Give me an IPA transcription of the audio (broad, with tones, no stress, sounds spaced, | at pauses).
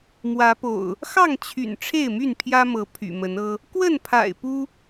m w ä˨˦ p o̰˨˩ ʊ̯ | x ɑ˥˨ ŋ t͡ɕʰ y̰˨˩ n ʈ͡ʂʰ e˥˨ ɪ̯ m y˥˨ n pʰ j ä˦ m ɤ˨˦ pʰ y̰˨˩ m ə˨˦ n ɤ˦ | k w ə˥˨ n pʰ a̰˨˩ ɪ̯ p u˦